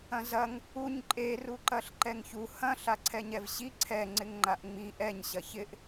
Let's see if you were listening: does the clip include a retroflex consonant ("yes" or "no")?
no